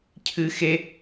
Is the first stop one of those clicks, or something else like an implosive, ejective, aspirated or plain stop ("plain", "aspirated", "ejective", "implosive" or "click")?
aspirated